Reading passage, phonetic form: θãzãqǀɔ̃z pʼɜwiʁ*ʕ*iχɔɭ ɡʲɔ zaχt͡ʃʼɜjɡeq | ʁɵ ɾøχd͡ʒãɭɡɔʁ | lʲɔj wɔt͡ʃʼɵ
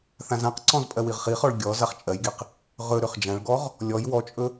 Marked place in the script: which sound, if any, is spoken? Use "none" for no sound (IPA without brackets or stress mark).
χ